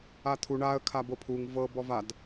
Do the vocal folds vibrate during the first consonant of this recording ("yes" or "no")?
no